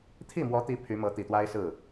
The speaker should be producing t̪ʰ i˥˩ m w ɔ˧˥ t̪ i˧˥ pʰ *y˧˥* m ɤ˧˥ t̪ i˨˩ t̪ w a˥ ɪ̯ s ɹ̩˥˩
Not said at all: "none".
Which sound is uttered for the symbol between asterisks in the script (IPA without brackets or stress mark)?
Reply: y˧˥